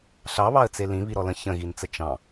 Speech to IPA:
ɬ ɑ β ɑ ə̯ t͡s e l ĩ β i ɾ ɔ l ə̃ ç ə̃ ɣ i n t͡s ə t͡ʃ ɑ̃

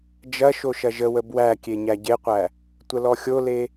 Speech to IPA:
d͡ʒ ɐ ʃ o ʃ ɐ ʒ ə w ə b w æ kʲ e ɲ æ ɟ e qʷ æ | tʷ ə l ɔ xʲ o l e

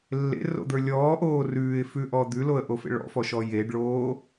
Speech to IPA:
lː ḛ r o̰ d̪ ə˞ lʲ ɔː ʔ oː r ʉː ɪ̯ f ʉ ʔ ɔ d̪ ʉ l o ə̯ ʔ o f ḛ ɭ ɔ̰ f ɔ ʃ ɔ j e ɖ ɭ oː

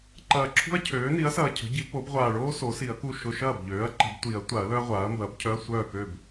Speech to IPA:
ǃ ɐː˨˩ ǁʰ ṳ˥ ɐ̯ cʰ øː˩˥ n i˩˥ ɐ̯ s ɐː˨˩ cʰ ə̤˩˥ ɟ i˩˥ p o˩˥ b ʁʷ aː˨˩ ɭ oː˥ s o˩˥ s i˨˩˦ ɐ̯ k u˥˩ ʃ ʊ˧˥˧ ʃ ɐː˥˩ b ʎ øː˩˥ ɐ̯ ǃ ə̤˨˩˦ b tʷ i˨˩˦ ɐ̯ tʷ a˨˩˦ ɐ̯ l œ˥ ɐ̯ ʁʷ aː˩˥ ɐ̯ m b ɐː˩˥ b cʰ œ˧˥˧ ɐ̯ sʷ œː˥˩ k ø˥˩ b

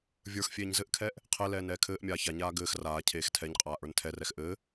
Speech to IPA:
vʲ ə˞ x fʲ eː ɲ z ɘ ʔ kʰ ɛː ʔ | qʰ ɛ l ɛː n ɛː kʰ ɘː ʔ mʲ aː ç a ɲ aː ɡ ɘː x r aː cʰ eː x tʰ ɛ ɲ qʼ aː ʔ ə˞ n tʰ ɛ r ɛ x ʔ ɘː

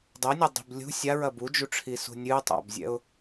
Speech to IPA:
dˤ ɛ nʲ ɛ dˤ i̤ b lʲ ṳ sʲ a ɹ ɐ b u d͡ʒ u ʈ͡ʂʰ i s ṳ nʲ ɨ tˤ a̰ b zʲ ɛ̰ ʊ̯

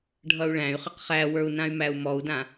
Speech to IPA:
ɖʱ ʌ u̯ ɭ æ̃ y̯ χ ə q χ æ w ə˞ u̯ n ã y̯ m æ u̯ m ɔ u̯ d ã

